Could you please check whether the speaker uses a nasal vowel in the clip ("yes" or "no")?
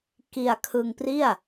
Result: no